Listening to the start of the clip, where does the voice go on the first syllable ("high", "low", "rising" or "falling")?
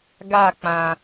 falling